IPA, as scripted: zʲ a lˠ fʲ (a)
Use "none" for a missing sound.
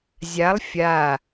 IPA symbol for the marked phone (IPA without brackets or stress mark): a